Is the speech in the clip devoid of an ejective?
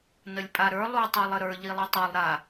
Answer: no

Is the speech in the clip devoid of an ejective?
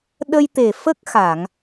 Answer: yes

